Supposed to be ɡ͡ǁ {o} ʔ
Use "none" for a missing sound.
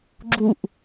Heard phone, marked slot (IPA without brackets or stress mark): u